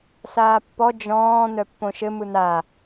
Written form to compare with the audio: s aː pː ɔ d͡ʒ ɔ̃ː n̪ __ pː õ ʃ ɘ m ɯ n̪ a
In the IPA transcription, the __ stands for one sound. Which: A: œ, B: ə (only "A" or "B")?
A